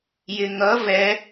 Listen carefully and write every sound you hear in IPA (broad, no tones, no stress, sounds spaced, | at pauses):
j ɪ ŋ ʌ v ɛ